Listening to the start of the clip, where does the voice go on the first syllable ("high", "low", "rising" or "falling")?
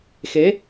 rising